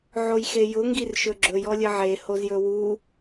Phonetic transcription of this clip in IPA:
ʕ o j x e j ʊ ŋ ɡ i r ʃ ɵ ɡ͡ǁ ɵ j ɔ lʲ ə ʕ e h o z j ɵ w u

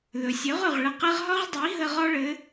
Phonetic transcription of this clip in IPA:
ð ɵ˨ sʲ ɵ˨˦ ʁ ɵ˨ ʁ ɭ ə˧ q ɘ˦ ʁ ɦ ɒ˦ ʁ dˤ i˨˦ ɦ ə˧ ʁ ɒ˦ ɭ ɘ˨˦

